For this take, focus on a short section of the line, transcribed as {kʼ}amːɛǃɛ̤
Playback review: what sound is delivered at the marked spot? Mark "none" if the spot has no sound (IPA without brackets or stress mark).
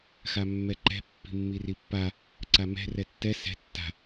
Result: x